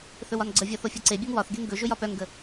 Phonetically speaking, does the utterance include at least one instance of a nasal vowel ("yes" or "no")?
no